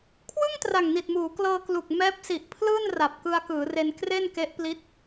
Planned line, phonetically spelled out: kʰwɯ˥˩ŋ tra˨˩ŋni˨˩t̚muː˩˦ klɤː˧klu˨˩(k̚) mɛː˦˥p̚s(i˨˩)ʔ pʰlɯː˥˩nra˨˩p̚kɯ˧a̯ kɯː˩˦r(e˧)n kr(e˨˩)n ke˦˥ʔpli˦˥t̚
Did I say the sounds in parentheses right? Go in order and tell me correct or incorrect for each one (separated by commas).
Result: correct, correct, correct, incorrect